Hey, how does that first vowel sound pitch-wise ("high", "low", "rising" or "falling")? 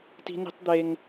high